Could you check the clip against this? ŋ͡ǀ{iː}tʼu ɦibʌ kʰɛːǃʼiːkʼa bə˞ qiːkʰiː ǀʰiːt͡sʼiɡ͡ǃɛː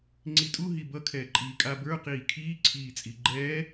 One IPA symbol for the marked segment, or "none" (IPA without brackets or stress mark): i